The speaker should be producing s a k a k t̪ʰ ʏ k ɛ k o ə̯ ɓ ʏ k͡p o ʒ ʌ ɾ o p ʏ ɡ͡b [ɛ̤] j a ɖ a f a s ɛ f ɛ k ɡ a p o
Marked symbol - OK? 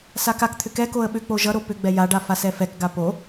no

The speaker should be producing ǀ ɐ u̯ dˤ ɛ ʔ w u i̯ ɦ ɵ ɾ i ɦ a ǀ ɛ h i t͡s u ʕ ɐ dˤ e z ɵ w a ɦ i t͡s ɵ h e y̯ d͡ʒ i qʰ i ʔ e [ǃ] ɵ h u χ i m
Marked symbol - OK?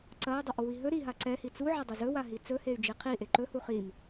yes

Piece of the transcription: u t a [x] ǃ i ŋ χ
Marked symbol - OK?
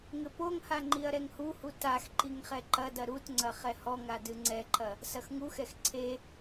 yes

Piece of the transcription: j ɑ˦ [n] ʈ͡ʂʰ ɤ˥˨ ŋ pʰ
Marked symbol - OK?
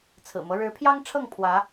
no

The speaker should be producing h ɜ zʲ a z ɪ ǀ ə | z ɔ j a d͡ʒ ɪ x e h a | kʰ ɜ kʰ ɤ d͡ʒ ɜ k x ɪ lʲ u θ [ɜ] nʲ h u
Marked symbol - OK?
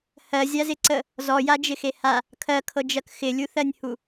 yes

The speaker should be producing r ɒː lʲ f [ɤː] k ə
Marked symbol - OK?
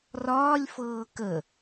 yes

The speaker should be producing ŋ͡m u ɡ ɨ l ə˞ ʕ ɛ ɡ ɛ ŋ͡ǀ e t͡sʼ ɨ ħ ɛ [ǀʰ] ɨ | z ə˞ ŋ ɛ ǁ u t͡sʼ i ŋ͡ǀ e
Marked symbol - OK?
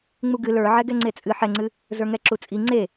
no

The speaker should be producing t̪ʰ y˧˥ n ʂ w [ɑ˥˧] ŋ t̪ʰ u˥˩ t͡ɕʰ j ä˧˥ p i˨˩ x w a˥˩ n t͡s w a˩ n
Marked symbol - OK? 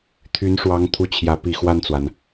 no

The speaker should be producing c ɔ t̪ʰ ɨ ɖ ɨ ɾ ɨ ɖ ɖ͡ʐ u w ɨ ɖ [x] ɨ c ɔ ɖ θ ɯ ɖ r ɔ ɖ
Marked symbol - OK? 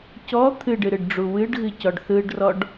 no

